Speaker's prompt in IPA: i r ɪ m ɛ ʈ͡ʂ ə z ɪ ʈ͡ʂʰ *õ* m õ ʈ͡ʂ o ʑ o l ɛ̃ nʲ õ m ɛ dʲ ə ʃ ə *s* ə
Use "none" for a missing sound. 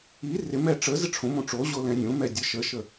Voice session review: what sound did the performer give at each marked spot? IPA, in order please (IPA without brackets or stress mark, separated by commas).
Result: õ, ʃ